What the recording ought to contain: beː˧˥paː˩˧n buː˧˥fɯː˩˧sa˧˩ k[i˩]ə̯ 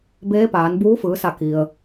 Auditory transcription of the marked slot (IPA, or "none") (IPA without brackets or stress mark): i˩